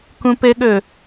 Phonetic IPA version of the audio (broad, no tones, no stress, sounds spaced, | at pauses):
k ũ p ɘ ɠ ɵ